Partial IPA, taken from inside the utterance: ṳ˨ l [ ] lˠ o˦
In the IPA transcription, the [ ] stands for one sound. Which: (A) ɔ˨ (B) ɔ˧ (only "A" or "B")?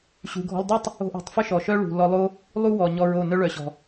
B